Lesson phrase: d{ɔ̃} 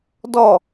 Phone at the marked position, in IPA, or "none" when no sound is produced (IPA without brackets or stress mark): ɔ